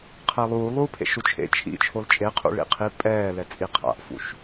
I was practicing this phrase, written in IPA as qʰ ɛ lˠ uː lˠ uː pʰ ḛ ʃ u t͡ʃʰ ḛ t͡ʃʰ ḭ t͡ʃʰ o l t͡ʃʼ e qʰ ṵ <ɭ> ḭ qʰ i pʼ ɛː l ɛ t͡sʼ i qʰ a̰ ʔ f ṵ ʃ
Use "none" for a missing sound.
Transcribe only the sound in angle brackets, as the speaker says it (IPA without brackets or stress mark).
ɭ